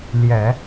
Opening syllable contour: low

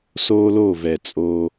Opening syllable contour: high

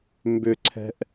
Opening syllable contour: high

